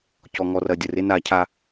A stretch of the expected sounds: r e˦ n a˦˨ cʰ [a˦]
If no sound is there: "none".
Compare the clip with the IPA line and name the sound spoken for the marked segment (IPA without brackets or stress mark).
a˦